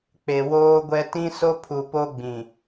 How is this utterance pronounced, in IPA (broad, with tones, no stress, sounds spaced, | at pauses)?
k͡p e˨ w oː˦ ɡʷ ɛ˦ t ĩ˦ s o˦ pʰ u˨ p o˦ ɡ͡b ĩ˨